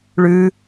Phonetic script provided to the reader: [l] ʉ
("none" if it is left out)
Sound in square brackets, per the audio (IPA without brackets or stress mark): ɭ